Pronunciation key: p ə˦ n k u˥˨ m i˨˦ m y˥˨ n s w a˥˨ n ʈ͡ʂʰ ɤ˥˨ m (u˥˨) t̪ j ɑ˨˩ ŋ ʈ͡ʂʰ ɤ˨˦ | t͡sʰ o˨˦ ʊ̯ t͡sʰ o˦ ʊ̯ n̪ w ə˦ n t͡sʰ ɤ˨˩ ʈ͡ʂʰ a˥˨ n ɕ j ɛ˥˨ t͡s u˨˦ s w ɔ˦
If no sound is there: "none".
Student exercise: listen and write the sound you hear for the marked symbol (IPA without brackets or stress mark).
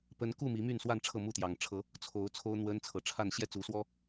u˥˨